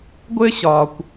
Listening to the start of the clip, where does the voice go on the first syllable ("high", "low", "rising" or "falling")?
high